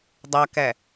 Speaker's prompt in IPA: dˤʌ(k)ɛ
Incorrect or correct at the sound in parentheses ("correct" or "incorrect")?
correct